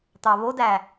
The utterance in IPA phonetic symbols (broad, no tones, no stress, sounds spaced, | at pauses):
t̪ ɑ β o d æ